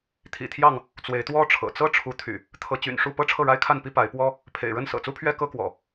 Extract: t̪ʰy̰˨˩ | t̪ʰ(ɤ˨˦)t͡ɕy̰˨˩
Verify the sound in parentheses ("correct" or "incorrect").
correct